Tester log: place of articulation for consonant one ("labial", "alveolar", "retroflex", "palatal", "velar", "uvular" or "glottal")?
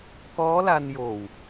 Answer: velar